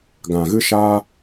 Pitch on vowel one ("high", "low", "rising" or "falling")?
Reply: low